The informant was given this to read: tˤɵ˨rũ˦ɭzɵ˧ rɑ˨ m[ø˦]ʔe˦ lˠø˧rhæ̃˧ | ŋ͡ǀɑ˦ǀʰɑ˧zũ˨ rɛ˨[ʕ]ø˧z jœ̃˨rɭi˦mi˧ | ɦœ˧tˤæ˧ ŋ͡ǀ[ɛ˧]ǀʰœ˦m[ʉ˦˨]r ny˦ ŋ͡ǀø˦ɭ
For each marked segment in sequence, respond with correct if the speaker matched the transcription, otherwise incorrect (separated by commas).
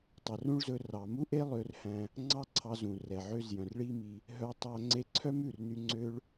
incorrect, correct, incorrect, correct